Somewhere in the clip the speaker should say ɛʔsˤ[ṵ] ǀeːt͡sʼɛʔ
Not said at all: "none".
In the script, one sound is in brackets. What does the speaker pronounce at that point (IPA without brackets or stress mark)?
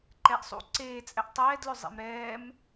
ṵ